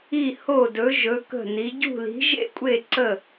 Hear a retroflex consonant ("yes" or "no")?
no